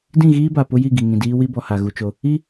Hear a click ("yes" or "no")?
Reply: no